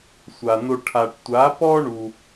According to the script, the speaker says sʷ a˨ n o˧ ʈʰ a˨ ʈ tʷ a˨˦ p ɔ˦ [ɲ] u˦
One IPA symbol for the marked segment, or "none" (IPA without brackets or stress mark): ɳ